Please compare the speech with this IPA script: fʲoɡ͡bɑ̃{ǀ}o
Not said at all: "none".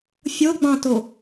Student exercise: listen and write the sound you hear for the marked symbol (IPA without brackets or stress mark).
t